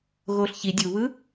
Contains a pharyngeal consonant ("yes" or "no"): no